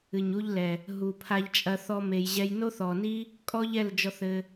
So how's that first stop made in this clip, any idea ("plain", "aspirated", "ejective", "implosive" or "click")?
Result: aspirated